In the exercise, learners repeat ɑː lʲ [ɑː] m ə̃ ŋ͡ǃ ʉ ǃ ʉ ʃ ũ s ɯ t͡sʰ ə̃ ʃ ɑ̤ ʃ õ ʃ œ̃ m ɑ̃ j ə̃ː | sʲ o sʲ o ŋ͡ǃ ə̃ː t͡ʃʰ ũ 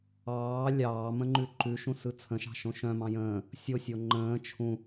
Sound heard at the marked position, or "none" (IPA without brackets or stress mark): ɑː